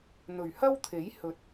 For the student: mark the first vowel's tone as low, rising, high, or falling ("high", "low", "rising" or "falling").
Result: low